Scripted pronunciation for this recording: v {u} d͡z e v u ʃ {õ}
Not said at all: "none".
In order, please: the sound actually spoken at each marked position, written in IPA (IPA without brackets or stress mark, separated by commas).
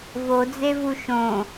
o, õ